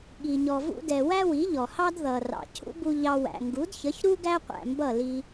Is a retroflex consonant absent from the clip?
yes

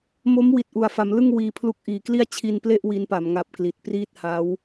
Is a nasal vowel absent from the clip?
yes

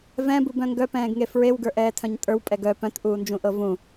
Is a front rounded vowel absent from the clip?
no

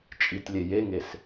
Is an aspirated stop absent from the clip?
yes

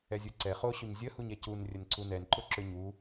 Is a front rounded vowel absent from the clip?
no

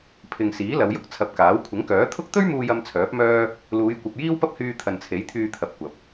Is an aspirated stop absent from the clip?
no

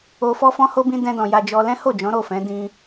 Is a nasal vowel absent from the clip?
no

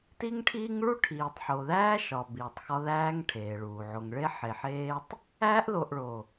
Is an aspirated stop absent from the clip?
no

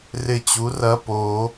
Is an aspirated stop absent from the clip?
yes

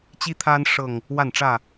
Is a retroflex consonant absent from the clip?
no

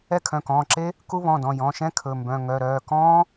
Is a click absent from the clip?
no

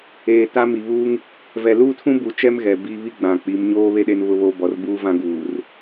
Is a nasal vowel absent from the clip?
no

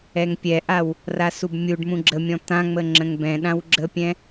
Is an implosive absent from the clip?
no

